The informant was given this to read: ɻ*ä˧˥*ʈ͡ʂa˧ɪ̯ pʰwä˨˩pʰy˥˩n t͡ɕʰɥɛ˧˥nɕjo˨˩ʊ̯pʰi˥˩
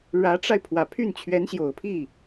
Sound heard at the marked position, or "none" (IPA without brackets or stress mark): ä˧˥